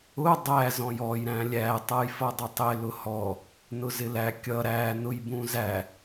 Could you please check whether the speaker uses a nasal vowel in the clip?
yes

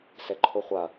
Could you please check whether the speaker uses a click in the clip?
yes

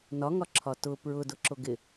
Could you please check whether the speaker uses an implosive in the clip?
no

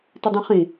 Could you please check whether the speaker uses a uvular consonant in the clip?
yes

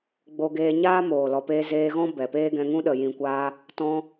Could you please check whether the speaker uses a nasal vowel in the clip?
yes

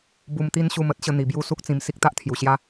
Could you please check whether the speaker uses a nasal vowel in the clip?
yes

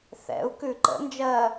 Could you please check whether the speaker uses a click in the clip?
yes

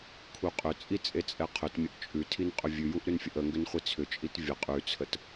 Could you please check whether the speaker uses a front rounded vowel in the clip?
yes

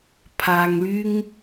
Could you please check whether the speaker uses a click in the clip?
no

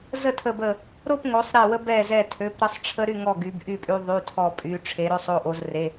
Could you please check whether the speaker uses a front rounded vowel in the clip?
yes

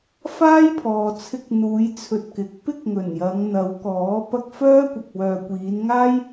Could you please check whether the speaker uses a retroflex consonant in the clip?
no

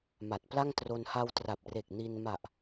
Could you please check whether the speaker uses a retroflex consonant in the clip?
no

